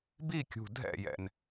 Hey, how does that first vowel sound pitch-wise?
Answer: falling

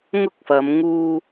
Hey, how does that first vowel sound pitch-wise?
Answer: high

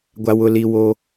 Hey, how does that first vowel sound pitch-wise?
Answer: low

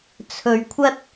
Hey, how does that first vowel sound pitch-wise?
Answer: low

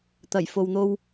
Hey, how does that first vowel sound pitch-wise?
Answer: low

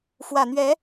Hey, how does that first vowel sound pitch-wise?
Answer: low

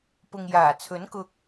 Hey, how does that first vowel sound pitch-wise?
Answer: low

